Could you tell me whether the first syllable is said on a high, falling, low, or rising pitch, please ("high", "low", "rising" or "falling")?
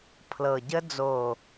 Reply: low